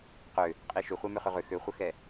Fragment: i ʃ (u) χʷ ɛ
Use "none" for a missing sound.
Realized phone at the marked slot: ʏ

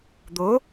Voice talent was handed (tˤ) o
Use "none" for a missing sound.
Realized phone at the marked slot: d̪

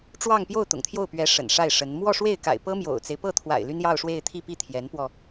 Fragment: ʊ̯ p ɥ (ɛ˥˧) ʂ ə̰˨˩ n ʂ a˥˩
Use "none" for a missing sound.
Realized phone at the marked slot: ɛ˧˥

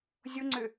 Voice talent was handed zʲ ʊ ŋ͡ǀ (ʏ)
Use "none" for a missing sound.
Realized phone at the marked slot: ʏ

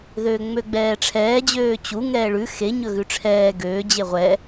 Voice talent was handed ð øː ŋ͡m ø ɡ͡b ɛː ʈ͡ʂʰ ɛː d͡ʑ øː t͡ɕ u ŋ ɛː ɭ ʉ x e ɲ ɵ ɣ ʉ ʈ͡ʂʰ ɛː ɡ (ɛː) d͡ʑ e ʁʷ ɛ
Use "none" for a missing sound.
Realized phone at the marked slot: øː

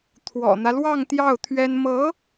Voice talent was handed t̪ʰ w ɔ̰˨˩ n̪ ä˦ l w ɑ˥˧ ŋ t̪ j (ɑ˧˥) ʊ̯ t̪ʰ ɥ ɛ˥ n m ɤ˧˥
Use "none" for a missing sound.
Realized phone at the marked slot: ɑ˥˩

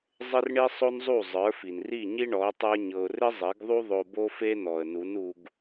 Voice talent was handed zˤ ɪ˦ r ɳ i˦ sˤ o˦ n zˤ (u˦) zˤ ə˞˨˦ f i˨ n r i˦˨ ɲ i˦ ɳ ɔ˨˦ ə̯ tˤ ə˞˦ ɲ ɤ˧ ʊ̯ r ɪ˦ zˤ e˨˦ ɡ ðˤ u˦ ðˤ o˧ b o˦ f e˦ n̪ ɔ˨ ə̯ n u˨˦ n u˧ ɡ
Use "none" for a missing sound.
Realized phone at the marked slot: u˦˨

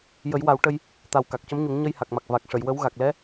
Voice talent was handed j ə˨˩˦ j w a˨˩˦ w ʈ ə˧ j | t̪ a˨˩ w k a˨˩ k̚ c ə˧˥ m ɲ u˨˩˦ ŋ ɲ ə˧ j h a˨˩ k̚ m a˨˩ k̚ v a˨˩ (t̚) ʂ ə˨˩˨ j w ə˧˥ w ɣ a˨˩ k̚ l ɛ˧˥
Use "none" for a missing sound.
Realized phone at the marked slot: k̚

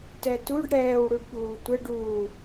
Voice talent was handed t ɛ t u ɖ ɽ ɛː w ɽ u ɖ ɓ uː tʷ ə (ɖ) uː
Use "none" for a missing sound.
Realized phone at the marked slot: ɖ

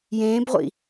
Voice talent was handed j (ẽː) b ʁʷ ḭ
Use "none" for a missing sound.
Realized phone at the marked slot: ẽː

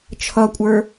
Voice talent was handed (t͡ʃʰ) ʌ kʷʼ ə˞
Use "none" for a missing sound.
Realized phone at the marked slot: t͡ʃʰ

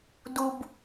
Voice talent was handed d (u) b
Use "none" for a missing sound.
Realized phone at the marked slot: u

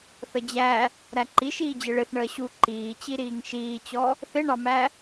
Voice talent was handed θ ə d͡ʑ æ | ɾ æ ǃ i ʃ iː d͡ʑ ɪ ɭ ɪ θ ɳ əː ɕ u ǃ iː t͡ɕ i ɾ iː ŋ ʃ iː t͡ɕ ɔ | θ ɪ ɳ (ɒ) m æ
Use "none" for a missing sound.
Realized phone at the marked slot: ɑ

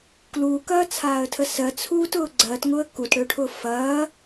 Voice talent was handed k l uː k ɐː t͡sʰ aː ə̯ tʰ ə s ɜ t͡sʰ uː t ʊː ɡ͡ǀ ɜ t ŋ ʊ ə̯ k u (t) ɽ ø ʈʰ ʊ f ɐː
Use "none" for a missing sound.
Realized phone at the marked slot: t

